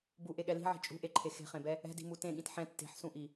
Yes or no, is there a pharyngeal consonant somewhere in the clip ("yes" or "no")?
yes